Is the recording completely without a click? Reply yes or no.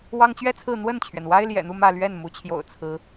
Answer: yes